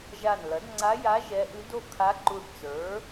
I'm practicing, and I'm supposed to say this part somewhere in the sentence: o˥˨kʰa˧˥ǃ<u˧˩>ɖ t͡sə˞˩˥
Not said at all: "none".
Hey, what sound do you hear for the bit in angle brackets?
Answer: u˧˩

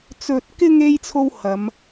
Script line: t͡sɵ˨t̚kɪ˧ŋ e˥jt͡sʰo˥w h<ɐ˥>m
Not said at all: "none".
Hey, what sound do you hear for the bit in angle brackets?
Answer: ɐ˨˧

